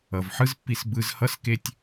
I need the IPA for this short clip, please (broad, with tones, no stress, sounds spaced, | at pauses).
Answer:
ʌ˩ v ħ ɯ˥ z pː i˧ s b ɯ˧ z h ʌ˥ s k e˥ tʲ